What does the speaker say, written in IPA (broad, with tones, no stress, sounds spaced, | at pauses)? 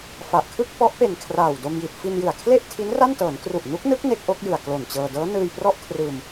f a˨˩ ʔ kʰ ɯ˥˩ k̚ p ɔ˦˥ ʔ p e˨˩ n kʰ r aː˨˩ w d o˧ m j i˨˩ t̚ f i˧ n j ɯ˨˩ a̯ kʰ l e˥˩ ʔ tʰ i˦˥ n r a˥˩ n t ɤː˩˦ n k r u˨˩ ʔ n u˦˥ k̚ n ɯ˦˥ k̚ n e˦˥ k̚ ʔ o˦˥ k̚ j ɯ˨˩ a̯ k l o˨˩ n t͡ɕ ɤː˧ d ɤː˦˥ n ɯː˧ j p r ɔ˥˩ ʔ kʰ r ɯː˧ m